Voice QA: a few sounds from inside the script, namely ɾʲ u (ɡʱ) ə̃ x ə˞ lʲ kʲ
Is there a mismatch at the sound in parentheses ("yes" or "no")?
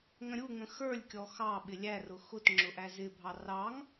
yes